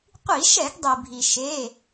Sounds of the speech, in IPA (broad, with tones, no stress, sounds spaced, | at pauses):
qʷ i˧˩˧ ʃ ɛ˧˩˧ ɡ dˤ i˩ bʱ i˩ ʃ e˩˧˩